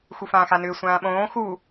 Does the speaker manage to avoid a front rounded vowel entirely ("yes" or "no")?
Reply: no